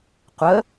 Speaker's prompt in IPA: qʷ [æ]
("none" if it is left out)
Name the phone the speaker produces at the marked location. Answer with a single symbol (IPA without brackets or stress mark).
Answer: ə